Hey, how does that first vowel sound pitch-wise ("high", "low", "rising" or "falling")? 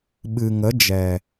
low